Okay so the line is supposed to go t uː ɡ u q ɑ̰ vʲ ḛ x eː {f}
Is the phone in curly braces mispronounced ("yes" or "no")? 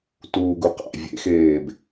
yes